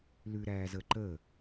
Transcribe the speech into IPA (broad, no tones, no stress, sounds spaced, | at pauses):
l ʉ ɾ æː z əː ǃ əː